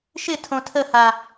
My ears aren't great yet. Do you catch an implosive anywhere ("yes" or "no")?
no